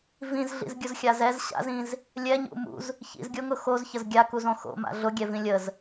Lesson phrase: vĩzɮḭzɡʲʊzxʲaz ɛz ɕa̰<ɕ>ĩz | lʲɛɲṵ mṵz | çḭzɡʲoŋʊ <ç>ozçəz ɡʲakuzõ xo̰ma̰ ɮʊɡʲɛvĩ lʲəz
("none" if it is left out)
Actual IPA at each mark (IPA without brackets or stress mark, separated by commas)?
z, x